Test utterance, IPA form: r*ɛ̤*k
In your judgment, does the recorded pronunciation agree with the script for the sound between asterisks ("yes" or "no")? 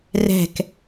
yes